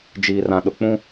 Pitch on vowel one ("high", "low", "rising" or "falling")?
low